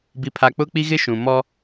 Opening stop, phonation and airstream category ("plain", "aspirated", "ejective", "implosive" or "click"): plain